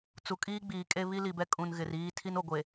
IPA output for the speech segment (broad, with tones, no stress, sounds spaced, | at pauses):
t͡s u˨ kʼ iː˦ ɡ͡b iː˨ kʼ e˦ β i˦ l i˨ b ɛ˦ kʼ ũ˨ n ɣ ɪ˨ r iː˦ tʰ i˦ n o˨ ɡʷ e˨